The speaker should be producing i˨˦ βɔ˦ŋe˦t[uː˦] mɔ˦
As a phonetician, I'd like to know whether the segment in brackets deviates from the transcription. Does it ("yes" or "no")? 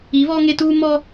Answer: no